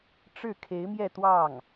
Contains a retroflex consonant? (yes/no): yes